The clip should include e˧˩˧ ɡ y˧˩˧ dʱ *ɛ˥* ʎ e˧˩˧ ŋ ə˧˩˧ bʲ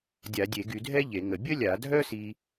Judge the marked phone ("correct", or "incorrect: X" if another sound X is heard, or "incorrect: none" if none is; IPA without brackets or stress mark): correct